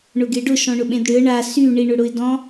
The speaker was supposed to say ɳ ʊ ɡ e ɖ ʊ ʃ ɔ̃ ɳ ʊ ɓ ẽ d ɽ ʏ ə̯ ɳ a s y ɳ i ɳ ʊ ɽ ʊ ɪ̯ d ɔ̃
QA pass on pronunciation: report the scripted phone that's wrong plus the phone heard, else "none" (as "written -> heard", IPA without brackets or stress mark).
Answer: none